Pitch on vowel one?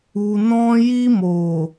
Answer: low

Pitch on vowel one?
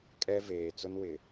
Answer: high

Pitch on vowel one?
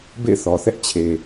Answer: falling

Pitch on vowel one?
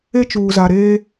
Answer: high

